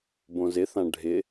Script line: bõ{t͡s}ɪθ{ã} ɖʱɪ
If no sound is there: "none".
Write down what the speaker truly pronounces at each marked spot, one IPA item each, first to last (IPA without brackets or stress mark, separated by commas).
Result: z, ã